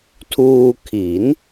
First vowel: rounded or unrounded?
rounded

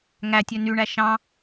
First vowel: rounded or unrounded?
unrounded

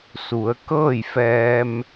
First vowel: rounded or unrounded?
rounded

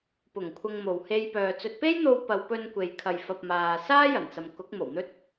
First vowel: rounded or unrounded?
rounded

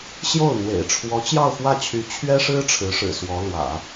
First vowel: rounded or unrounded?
rounded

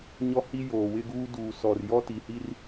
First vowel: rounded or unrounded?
rounded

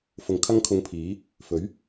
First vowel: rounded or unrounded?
rounded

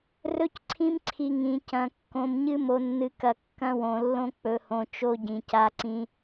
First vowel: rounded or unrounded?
rounded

